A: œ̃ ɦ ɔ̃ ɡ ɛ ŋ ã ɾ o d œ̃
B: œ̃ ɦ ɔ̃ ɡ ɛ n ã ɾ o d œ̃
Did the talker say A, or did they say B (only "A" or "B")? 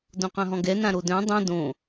B